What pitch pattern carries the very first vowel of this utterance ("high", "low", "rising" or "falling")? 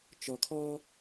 low